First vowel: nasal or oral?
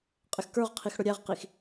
oral